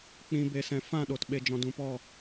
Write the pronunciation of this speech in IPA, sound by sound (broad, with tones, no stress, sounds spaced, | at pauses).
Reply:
k͡p ĩ˧ b e˨ s ɛ̃˨ f ã˦˨ ɗ o˨ t ɓ e˨ d͡ʒ ɔ̃˨ d ũ˨ p ɔ˦˨